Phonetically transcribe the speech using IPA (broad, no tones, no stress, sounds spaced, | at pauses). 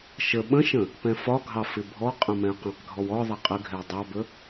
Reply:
ʃ ə ɓ ə̃ ʃ ə̃ | p ɛ̃ f ɒ ɡʱ ɑ f ɪ bʱ ɔ qʼ ə̃ m ɛ̃ ə̯ q ɛ̃ q ɡʱ ɔ w ɔ ðˤ ɛ qʼ ə ɡʱ ɛ w dˤ ɑ b ə